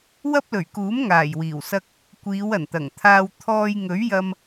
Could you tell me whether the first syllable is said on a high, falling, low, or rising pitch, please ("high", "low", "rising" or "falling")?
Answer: high